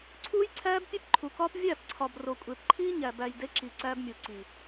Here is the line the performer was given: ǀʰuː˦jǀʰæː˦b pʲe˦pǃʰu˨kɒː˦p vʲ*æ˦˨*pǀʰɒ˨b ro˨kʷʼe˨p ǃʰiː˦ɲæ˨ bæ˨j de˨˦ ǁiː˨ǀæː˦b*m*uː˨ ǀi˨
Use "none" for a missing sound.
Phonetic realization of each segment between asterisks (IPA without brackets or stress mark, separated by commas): æ˦˨, mʲ